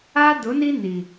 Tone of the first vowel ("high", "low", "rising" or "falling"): high